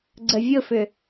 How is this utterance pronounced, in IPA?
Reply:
ɡ͡ǀ ə vʲ ʊ f ʏ

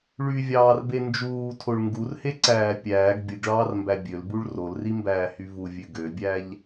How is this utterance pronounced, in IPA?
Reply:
ɭ y vʲ ɑː r b e n d͡ʒ uː tʰ o ɭ ŋ ɡ u r h e ǀ æː pʲ æː ɡ bʲ ɯ ɡ ɭ ɑː r m b æ bʲ ø l b u ɭ r o l r i m b æː h y v u vʲ ø ɡ ø bʲ æ ʎ

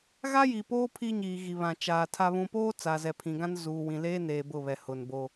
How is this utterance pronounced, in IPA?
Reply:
ɣ a˦ j i˨ p oː˦ pʰ i˦ ɲ iː˨ ɣ i˨ β ã˨ t͡ʃ aː˨ tʰ a˦ β ũ˦ p oː˦ t͡s a˨ z ɛ˨ pʰ ĩ˨ ɡ ã˦ n z uː˨ w ĩ˨ l eː˦ n eː˨ b ʊ˦˨ β ɛ˨ h ʊ˨ n b o˦

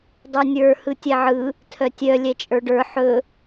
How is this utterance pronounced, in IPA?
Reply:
dˤ ə˞ nʲ ə˞ h ɯ tʲ ɛ ʕ ɯ | tʰ œ tʲ œ lʲ ɛ t͡ʃʼ ə˞ ɖ ə˞ ħ ɵ

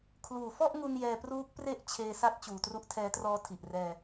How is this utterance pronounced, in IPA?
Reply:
kʰ l uː˨˩ f ɔ˥˩ ʔ ŋ u˧ n j ɛː˧ p r uː˦˥ k̚ p r e˥˩ ʔ t͡ɕʰ eː˧ s a˦˥ t̚ t͡ɕ uː˨˩ t r u˦˥ ʔ tʰ ɛː˦˥ t r ɔː˦˥ tʰ i˨˩ ʔ r ɛː˧

